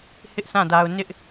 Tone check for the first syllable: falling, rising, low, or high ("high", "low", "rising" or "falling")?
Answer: high